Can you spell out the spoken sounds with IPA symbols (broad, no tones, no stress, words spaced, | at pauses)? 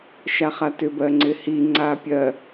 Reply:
ʃaχatʏbɜ ŋ͡ǀɪhiŋ͡ǀa pʲɜ